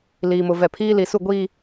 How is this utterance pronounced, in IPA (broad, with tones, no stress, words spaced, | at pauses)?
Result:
liː˨mʊ˨ vɛ˨pʰiː˦li˨su˦˨ ɡʷi˦˨